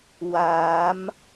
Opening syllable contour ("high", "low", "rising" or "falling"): rising